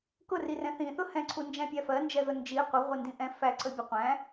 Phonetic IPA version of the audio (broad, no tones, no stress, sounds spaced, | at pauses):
k ʊ r i r ɛ̃ θ ĩ θ ʊ h ɛ̃ ǀʰ u n d͡ʒ æ̃ pʲ æ f ɜ n d͡ʒ ɛ ð ʊ n d͡ʒ i qʷ ɪ ʁʷ ɪ n d ĩ ʔ ɛ̃ f æ ǀ ə bʲ ʊ qʷ æ̃